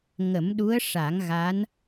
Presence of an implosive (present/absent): present